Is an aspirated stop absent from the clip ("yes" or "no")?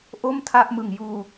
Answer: no